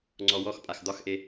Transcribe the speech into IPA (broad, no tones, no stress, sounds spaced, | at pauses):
ŋ͡ǀ ɔ w ɔ x pʼ a x d̪ ɒ x ʔ e